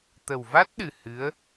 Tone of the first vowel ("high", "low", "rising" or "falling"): low